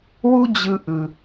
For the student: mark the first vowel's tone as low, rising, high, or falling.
high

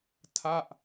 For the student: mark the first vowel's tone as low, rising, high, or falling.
falling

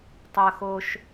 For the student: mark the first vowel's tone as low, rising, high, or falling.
high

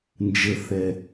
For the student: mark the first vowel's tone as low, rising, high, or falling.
low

